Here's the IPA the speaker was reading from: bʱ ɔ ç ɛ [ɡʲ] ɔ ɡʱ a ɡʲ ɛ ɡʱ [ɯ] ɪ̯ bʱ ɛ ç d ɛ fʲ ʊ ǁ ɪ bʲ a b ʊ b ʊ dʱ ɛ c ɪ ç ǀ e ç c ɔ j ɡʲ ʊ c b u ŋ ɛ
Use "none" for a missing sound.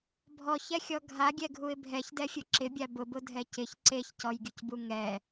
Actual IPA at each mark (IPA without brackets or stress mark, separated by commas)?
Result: xʲ, u